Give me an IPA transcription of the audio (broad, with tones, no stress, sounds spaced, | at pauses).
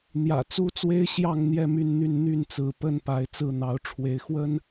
n̪ j ä̰˨˩ t͡s u˦ t͡s w e˦ ɪ̯ ɕ j ɑ˥˨ ŋ n̪ j ɛ˥˨ m y˥˨ n n̪ y˥˨ n n̪ y˥˨ n t͡s ɹ̩˨˦ p ə˦ n p a˨˦ ɪ̯ t͡s ɹ̩˥˨ n̪ ɑ˨˦ ʊ̯ ʈ͡ʂʰ w e˨˦ ɪ̯ x w ə˦ n